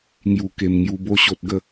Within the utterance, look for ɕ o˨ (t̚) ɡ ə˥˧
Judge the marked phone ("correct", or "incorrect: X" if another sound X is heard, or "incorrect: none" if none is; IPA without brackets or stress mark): correct